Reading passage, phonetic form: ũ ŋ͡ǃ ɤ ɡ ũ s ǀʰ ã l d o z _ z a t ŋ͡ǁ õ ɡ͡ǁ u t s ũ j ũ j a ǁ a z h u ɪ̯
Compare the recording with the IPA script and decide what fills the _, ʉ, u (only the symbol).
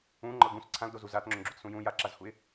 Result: u